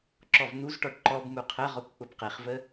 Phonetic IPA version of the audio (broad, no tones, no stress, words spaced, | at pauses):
ǁɔvn̪uzʈɔʈ ǃɔb muqʰəʁɔkʷ k͡pʊbqeχvə